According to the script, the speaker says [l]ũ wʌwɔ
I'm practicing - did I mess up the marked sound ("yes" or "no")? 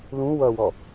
no